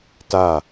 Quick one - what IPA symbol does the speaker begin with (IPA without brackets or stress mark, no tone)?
t